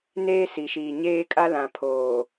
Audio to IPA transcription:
neː˦si˨ʃiː˨ ɲeː˦ kʼa˦lã˨pʰoː˨

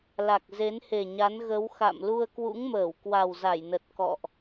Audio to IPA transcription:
la˨˩k̚ ze˨˦nhe˨˩ɲa˨˦n ɣə˨˦w xa̰˧˨m lu˧ə̯kwṵ˧˥ŋməː˧˩w kwa˨˩wza˧˩jnə˨˩t̚ kɔ̰˧˨ʔ

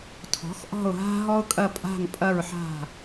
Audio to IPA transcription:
tʰɔ̤˩˥x ʔɔ̤˦˨ʊ̯ɦa̤˦ ɦɔ˦ʊ̯kʼɐ˦˨ pʼa̤˦˨ŋpʼɐ˦˨ɹħa̤˦˨

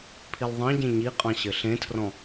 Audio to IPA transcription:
pʰilðˤɑ̃ɟẽ ɲiqʼɑ̃ ɕɘɬẽtʰrɔ̃

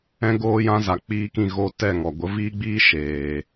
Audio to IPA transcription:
ɛ̃˦ɡoː˦jã˦ za˨k͡piː˧kĩ˦˨ ɣo˧ tɛ˦˨ŋɔ˨ ɡʷə˨˦viː˦ɡ͡biː˦ ʃeː˨

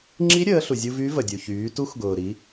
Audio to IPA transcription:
ŋ͡ǁi˧˥ ɾʲəː˩˧ɬu˩zʲu˧ vy˧˥ və˩dʲu˩çyː˩˧tu˧˥x ɡʊː˩ɾi˩˧

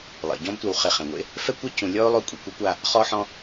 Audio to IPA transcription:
lˠḭ˩ɟɔ̃˦btʷɛ˨w χe˨χɛ̃˩ŋʷḛ˥ | fɛ˥kʷɛ˥ cʰũ˨ lʲɔ˥o̯lˠo˦ kʷʼi˨kʷɛ˥kʷa˦ | χɔ˦ħɔ̃˦

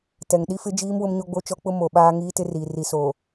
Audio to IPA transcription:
tɛ˨ŋ ɗi˦fɪ˦d͡ʒiː˦m wʊ˦mɲo˦ɡ͡bo˦t͡ʃɔ˦ k͡pʊ˦mo˨ ɓaː˦ŋiː˦tɪ˦riː˨ ri˨soː˨

